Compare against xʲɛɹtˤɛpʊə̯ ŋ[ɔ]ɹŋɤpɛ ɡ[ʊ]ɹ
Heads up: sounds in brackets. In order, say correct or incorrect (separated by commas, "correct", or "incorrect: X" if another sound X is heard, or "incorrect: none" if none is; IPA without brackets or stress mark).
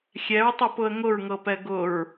incorrect: ʊ, correct